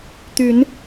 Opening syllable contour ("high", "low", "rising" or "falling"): rising